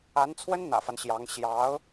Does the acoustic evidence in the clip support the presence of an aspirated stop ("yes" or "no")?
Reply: yes